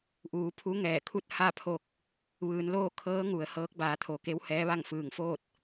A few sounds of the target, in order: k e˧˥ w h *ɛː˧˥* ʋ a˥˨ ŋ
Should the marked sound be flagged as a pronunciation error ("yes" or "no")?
no